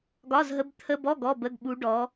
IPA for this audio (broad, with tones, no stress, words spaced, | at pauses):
ɡɒ˧˥˧zɦə˧˥˧bt̪ʰə˧˥˧bɔ˧˥˧ ɡɔ˧˥˧bə˧˥˧ɡɓu˧˥ ɖɔ˧˥